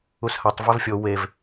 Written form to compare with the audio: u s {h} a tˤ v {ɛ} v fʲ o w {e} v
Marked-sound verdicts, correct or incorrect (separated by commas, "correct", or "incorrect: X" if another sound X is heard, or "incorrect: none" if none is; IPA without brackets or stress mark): correct, correct, correct